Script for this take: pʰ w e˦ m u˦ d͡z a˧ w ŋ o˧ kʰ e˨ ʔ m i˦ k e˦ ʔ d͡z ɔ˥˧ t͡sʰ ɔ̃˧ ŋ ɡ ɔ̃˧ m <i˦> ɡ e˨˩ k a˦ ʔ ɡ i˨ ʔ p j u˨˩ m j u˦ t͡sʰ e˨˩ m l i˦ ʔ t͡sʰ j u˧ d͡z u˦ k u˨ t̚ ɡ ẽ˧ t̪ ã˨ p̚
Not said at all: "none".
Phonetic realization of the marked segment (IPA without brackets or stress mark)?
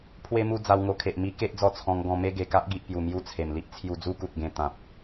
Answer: e˦